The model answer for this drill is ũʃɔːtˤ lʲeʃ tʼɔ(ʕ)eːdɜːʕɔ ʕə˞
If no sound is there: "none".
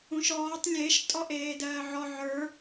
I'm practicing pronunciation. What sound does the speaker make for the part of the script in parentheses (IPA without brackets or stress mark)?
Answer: ʔ